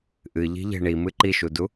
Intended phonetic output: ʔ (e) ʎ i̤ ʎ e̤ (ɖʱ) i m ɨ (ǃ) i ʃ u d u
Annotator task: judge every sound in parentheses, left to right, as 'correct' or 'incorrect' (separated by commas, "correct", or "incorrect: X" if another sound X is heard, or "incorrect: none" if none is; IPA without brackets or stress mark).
incorrect: ɨ, incorrect: ɳ, correct